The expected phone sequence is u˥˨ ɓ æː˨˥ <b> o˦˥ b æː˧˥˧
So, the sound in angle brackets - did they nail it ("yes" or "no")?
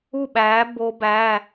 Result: yes